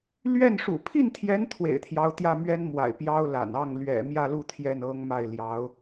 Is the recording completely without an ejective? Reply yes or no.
yes